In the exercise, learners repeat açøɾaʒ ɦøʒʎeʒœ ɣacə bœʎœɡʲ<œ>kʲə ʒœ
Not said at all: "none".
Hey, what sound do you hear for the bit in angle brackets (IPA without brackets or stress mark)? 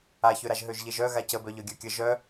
œ